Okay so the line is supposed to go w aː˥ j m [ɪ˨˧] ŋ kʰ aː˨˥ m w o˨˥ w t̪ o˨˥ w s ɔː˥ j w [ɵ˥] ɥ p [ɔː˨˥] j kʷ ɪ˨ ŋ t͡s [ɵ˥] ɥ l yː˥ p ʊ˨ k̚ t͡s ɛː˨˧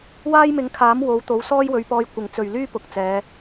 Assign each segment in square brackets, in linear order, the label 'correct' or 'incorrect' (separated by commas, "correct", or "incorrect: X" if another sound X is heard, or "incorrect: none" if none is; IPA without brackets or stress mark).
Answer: correct, incorrect: ɵ˨˧, incorrect: ɔː˧, incorrect: ɵ˨